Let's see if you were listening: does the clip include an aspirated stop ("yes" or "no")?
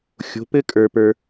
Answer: no